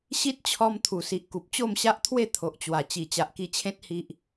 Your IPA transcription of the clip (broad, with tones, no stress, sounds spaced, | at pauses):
ɕ i˦ t̚ t͡ɕʰ ɔ˧ m t̪ʰ u˨˩ s i˨ ʔ k u˨ p̚ t͡ɕ o˥˧ m ɕ a˦ ʔ t̪ʰ w e˥˧ t̪ʰ o˨ ʔ t͡ɕ w a˨˩ t͡ɕ i˨˩ t͡ɕ a˨ ʔ k i˧ t͡ɕʰ ẽ˦ t̚ h i˦ ʔ